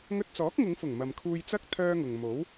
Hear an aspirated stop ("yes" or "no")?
yes